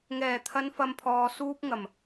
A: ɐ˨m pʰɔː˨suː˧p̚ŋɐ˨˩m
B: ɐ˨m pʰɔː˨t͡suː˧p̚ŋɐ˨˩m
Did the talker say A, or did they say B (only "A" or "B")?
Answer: A